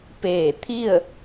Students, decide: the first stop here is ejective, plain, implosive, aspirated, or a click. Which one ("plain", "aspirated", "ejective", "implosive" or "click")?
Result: plain